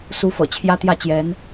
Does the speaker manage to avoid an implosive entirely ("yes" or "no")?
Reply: yes